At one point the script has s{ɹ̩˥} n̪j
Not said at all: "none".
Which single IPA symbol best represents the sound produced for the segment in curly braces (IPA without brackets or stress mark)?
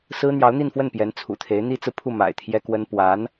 ɹ̩˥